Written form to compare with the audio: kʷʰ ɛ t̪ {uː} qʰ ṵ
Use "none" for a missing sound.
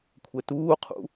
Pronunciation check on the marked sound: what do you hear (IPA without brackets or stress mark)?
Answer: uː